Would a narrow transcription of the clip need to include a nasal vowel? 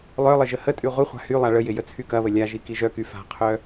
no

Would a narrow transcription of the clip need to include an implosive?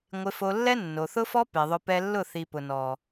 no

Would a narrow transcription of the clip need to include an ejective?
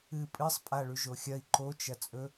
yes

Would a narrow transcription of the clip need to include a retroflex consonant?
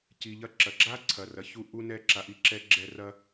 no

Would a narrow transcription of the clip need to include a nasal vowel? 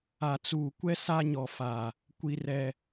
no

